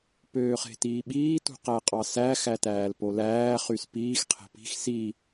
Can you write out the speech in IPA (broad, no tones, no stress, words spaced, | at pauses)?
pøːχe̤tiːɓiː tṳqæqʼɑsæ xætæːlpolæː χyspiːx qʰe̤pi̤x si